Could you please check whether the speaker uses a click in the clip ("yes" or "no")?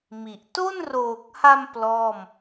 no